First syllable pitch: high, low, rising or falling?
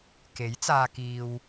rising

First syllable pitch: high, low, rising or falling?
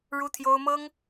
high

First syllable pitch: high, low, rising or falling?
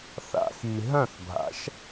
low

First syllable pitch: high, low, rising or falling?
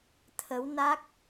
rising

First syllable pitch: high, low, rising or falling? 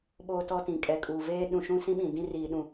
high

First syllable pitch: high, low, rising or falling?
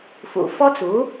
low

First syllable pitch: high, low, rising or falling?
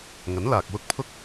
rising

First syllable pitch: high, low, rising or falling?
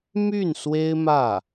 falling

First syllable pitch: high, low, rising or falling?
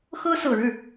high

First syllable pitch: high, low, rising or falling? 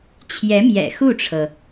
rising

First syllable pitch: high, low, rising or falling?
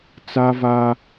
high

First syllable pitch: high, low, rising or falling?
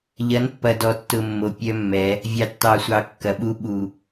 rising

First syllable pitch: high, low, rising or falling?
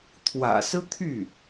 low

